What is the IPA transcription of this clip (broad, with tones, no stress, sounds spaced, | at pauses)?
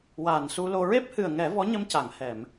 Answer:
w aː˨˩ n s u˧ l o˧ ɹ e˦˥ p̚ h ɨ˨˩ ə̯ ŋ ɛ˨˩˦ v ɔ˧˥ ɲ ə˧ m c a˨˩˨ ŋ h ɛ˨˩˨ m